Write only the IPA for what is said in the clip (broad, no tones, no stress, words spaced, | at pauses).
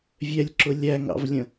vʲɛlʲǁʊ lʲæŋɑ̰vlʲə̃